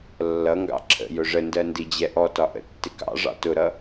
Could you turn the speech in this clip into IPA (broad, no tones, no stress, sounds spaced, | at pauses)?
lː ʌ ŋ ɡ ɑ̰ ǁʰ ə̰ j ʊ ʐ ə n d ɜ n d i d͡ʑ ɛ ʔ ɔ t ɒ ʔ ə̰ tː ɪ k ɑ̰ ʐ ɑ̰ t ʊ ɾ ʌ